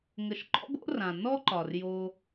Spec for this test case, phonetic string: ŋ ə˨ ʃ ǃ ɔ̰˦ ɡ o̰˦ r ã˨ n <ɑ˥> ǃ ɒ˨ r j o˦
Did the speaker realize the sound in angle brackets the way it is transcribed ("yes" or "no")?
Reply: no